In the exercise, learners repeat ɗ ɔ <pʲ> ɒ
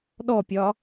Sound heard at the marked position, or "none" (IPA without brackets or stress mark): pʲ